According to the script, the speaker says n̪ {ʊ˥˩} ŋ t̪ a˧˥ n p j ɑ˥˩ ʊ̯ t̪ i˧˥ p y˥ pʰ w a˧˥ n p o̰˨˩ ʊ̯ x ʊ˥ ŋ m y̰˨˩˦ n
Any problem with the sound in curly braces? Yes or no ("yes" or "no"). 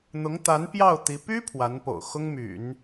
yes